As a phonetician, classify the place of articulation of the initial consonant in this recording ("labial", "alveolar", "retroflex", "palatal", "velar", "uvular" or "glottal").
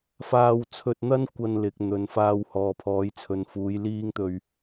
labial